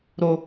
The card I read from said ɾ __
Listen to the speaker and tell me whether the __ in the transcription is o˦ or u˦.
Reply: o˦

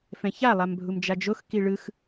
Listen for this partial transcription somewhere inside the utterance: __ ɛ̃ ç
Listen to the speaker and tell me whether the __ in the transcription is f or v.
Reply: f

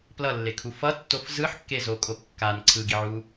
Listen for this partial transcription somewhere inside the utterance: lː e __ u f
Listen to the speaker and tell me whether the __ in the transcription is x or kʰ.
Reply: kʰ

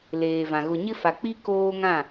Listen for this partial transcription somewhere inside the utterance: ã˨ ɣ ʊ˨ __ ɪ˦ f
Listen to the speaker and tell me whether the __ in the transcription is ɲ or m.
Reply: ɲ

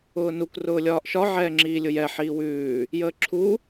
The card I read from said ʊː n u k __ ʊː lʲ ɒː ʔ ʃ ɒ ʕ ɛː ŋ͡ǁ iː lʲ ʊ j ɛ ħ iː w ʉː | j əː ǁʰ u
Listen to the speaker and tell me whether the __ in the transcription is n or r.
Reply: r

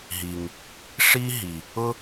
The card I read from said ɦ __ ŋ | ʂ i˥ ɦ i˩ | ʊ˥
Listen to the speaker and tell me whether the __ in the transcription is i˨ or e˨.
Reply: i˨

